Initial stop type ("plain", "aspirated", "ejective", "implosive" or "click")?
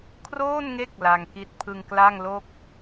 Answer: aspirated